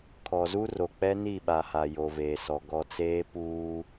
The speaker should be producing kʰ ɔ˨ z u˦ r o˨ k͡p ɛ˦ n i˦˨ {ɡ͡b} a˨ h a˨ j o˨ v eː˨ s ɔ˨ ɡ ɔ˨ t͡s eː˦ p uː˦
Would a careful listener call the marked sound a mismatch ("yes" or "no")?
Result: yes